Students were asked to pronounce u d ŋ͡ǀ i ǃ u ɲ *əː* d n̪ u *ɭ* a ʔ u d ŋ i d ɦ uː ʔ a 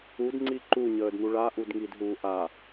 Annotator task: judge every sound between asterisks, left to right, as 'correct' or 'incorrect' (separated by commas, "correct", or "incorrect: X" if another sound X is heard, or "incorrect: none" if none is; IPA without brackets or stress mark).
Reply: correct, correct